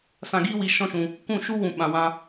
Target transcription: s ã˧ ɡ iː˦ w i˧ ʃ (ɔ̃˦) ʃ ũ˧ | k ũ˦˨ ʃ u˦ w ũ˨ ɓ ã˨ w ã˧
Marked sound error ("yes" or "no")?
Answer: no